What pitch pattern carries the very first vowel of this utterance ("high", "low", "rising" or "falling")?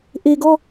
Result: low